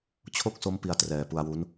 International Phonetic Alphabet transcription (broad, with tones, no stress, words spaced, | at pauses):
t͡ɕʰo˥˩k̚so˦˥m pi˧a̯trɛː˨˩pu˧a̯wu˦˥n